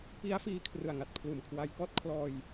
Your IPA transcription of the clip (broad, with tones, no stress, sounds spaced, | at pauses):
p i˦˥ a̯ f iː˧ kʰ r ɯ˨˩ a̯ ŋ a˨˩ t̚ pʰ l uː˨˩ m kʰ w a˧ j k ɔː˥˩ t̚ kʰ l ɔː˧ j